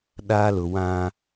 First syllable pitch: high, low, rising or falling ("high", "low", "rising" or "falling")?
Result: high